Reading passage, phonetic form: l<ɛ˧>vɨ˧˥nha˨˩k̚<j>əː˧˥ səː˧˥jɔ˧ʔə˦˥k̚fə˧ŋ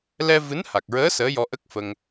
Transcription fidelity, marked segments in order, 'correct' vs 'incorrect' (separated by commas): correct, incorrect